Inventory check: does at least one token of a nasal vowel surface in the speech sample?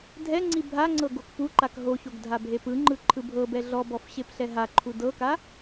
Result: no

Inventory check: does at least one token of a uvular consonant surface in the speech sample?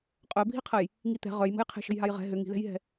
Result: yes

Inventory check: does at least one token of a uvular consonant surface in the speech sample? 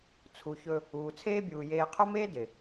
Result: yes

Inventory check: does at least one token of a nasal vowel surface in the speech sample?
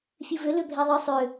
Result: no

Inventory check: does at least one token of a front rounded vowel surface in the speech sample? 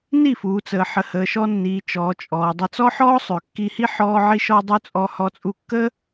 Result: yes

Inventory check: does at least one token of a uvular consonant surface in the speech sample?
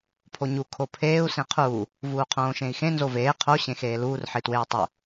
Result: yes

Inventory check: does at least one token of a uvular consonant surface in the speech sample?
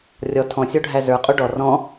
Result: yes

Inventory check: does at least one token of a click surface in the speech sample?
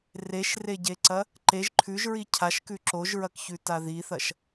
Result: yes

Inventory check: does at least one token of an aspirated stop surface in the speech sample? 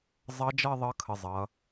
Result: yes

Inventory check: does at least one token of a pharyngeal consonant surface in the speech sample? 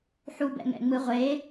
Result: yes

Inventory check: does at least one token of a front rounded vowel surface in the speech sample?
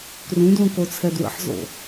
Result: no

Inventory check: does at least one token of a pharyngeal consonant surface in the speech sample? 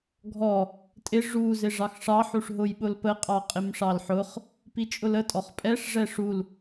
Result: yes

